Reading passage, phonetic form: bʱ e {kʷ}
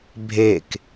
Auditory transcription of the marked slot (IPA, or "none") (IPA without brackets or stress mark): k